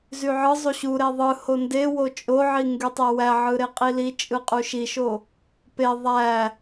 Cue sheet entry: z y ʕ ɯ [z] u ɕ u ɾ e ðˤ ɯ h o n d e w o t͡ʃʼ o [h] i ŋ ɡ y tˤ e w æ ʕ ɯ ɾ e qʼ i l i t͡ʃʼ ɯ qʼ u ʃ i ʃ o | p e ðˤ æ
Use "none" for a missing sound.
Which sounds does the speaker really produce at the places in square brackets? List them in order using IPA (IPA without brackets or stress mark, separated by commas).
zˤ, ʕ